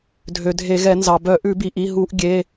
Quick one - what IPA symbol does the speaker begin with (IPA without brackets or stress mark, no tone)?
dʱ